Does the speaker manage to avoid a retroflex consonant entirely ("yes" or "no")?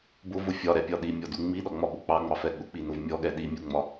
yes